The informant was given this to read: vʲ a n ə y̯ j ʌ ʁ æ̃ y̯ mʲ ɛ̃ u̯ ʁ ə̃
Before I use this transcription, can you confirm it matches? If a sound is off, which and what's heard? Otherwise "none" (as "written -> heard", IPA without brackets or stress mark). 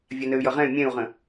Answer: æ̃ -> ɛ̃